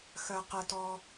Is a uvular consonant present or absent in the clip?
present